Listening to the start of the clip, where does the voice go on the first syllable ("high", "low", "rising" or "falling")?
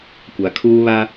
low